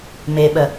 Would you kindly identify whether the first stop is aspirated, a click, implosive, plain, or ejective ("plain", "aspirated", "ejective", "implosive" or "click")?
implosive